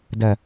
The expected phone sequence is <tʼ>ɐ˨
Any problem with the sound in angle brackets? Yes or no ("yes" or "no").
yes